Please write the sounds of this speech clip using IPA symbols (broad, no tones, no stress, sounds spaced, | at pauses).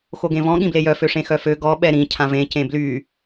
x o ɡ ẽ v ɔ̃ ɠ ĩ b l e j œ f ø ʂ ẽ x œ f ø ɡ ɔ ɓ ɛ ɾ ĩ cʰ ã v ẽ c ẽ b l y